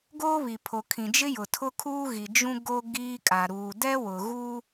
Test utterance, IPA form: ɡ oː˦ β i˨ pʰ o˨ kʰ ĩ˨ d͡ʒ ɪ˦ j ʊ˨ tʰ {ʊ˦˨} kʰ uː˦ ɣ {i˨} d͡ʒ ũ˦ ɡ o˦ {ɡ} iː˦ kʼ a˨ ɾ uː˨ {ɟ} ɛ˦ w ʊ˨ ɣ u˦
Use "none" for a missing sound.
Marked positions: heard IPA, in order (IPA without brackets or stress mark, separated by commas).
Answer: ʊ˦, i˨, ɡ, d